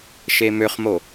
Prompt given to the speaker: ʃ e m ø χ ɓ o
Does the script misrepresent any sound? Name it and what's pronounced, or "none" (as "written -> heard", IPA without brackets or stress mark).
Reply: ɓ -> m